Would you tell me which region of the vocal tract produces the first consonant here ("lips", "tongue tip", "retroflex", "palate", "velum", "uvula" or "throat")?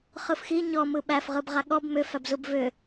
uvula